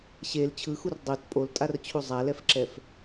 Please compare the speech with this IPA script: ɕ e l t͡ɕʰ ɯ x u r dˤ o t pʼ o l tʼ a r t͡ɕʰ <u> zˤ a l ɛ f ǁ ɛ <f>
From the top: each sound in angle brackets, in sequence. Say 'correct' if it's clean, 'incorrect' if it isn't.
correct, correct

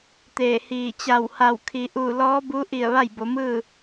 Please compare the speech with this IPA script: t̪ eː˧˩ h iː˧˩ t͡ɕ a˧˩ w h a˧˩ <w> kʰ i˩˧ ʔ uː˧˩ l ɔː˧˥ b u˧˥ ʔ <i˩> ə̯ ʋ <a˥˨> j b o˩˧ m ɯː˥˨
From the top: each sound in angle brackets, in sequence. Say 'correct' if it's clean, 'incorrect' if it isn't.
correct, incorrect, correct

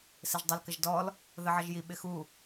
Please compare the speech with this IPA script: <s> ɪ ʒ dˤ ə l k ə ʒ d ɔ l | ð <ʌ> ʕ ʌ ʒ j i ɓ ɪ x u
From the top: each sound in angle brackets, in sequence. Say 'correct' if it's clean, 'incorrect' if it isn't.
correct, incorrect

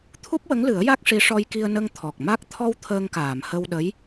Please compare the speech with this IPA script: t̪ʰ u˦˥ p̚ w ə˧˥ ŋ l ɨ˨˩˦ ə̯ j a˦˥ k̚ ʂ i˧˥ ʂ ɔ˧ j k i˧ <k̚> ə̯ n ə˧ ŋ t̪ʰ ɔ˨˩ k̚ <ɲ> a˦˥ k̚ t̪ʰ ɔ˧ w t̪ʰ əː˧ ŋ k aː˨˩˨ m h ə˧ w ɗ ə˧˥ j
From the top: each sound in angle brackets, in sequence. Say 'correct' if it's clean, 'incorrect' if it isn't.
incorrect, incorrect

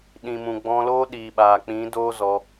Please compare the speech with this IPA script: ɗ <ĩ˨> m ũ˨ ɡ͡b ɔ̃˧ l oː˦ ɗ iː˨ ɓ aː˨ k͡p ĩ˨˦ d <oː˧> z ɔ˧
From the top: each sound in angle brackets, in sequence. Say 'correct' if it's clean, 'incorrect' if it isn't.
correct, incorrect

